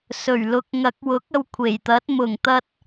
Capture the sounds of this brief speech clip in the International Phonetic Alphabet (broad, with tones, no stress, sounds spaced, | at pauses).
s ɵ˨˩ ɥ l ʊ˨ k̚ ŋ ɐ˨˥ k̚ w ʊ˨˥ k̚ ɐ˧ w kʷʰ e˨˩ j t̪ ɐ˨˥ t̚ m ʊ˨˩ ŋ t̪ ɐ˧ t̚